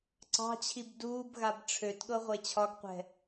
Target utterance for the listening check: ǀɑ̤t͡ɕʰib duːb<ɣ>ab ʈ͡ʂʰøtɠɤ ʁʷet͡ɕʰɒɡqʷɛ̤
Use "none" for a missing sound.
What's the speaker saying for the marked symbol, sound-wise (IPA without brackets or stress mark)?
ɣ